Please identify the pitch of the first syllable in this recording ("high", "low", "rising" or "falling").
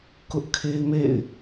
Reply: high